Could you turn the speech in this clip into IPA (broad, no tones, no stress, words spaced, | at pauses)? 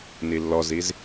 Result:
nilːɔziz